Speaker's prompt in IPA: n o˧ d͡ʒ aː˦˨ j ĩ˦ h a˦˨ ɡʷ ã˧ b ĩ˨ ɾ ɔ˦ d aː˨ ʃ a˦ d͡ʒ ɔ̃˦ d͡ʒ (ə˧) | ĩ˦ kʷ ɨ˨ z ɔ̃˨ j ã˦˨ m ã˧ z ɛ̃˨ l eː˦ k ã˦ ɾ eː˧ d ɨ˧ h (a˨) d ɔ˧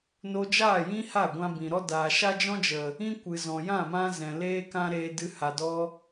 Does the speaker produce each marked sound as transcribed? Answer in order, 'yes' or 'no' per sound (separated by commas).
no, yes